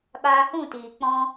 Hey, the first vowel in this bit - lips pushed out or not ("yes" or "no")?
no